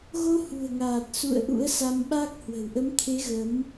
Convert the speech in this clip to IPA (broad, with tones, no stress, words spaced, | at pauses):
ɣo˧hṳ˨˩ə̯ŋaː˨˩t̚sṵ˧˨ə̯ ʔṵ˧˥ə̯sa˧mɓa˦˥k̚ hwə̤˨˩wʔə˨˦mt̪ʰe˨˦ ɣə˨˦m